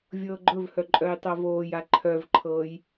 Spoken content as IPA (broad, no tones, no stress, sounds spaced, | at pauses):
vʲ ɤː ɡ͡ǃ ɵ v h œ ǃʼ œ j tˤ ɤ v oː j a ǃʰ œ v ǃʰ ɤː j